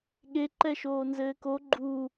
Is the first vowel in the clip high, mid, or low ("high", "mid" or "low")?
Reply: mid